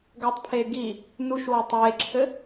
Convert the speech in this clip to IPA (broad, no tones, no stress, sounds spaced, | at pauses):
ɡ æ tˤ pʰ eː ɡ i | n u ʃ w a tˤ eː ǁʰ ɘ